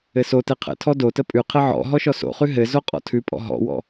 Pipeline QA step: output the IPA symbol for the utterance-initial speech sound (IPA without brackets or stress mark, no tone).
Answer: ɘ